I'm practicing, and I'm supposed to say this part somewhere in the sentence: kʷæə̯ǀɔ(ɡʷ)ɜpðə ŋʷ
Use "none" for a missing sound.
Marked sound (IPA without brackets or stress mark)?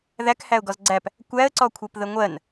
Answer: kʷʰ